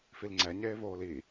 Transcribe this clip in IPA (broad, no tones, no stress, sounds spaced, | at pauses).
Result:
f i l ŋ͡ǀ ɛ ɲ eː v oː l i